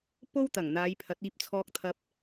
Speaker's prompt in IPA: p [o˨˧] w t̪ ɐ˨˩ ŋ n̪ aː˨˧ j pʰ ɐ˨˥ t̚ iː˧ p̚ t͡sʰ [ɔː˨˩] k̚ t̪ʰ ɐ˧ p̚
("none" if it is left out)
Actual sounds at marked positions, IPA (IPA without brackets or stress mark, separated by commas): o˥, ɔː˧